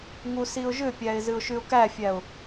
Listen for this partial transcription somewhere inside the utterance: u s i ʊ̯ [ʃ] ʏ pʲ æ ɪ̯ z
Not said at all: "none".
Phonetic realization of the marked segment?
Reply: ʒ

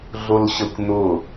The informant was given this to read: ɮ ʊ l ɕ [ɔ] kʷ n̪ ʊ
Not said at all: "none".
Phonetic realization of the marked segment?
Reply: ə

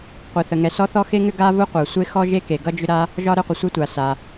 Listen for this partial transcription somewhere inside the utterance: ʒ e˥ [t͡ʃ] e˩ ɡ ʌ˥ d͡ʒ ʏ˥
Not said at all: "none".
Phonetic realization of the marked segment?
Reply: k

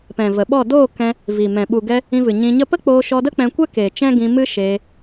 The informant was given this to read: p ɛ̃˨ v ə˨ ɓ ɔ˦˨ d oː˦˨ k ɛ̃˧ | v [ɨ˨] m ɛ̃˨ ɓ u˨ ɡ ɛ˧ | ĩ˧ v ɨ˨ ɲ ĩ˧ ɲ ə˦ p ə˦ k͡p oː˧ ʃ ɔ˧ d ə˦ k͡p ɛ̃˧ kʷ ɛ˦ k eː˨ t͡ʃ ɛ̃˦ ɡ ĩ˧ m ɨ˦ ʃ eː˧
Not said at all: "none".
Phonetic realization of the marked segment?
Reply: i˨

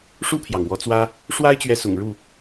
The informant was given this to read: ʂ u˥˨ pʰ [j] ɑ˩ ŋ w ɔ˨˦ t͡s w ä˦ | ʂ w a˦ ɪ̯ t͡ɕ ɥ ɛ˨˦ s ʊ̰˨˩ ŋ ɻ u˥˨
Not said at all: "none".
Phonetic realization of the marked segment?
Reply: j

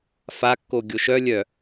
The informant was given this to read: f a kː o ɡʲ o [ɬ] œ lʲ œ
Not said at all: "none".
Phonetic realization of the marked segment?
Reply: ʃ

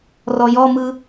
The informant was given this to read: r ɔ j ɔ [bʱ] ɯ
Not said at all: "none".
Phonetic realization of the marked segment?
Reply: m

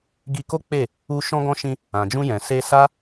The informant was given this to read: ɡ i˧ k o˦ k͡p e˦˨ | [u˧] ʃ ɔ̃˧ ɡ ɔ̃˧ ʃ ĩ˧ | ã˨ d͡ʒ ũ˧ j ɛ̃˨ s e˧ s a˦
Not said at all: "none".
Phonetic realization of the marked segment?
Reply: u˧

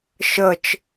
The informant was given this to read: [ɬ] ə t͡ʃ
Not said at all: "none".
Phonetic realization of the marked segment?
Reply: ʃ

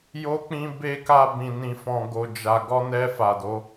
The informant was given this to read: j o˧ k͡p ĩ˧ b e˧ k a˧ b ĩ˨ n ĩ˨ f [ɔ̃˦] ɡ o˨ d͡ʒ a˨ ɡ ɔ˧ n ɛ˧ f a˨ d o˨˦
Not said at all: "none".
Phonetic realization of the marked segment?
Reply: ɔ̃˨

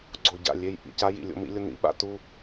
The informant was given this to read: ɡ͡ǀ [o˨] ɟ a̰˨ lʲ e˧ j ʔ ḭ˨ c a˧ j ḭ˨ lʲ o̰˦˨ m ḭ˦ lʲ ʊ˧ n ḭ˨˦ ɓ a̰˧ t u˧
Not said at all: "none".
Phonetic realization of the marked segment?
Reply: o˨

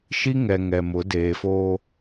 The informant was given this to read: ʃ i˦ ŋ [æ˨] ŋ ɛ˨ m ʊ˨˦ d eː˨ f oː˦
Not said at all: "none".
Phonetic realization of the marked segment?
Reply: ɛ˨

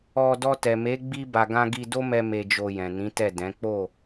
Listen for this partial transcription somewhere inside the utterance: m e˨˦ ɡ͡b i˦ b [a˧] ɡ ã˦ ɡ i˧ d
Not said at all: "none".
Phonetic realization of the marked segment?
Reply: a˧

